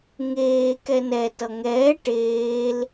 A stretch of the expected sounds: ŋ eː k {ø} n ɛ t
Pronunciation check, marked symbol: incorrect: ɛ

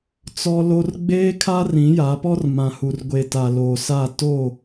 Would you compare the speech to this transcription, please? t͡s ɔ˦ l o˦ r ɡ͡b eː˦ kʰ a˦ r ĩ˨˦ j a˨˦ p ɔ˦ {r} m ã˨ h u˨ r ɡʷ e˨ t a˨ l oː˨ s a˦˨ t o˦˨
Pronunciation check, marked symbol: correct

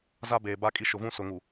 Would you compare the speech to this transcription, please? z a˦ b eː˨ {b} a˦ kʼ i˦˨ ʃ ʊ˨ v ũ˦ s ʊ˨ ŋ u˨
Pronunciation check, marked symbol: correct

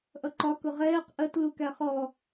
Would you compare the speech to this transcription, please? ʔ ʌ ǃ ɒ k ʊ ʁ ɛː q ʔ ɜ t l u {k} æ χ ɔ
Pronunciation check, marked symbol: correct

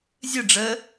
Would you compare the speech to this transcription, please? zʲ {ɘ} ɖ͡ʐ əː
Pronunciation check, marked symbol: correct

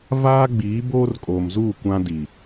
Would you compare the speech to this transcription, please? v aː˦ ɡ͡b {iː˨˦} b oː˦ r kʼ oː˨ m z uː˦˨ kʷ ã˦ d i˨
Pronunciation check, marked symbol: correct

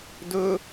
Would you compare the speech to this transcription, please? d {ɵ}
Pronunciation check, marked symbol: correct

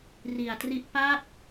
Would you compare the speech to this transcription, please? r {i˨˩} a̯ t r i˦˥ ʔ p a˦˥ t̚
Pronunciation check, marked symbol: correct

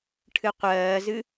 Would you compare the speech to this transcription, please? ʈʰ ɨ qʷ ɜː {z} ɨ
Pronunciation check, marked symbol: correct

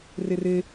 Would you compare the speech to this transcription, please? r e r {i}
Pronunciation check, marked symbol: incorrect: e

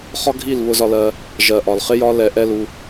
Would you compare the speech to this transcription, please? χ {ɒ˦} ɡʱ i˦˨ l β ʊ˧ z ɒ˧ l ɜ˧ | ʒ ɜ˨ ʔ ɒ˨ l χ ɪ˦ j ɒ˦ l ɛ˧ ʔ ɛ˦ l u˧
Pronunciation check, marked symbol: correct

